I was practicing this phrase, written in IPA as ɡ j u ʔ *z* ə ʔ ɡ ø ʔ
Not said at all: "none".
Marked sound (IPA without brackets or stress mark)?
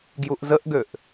z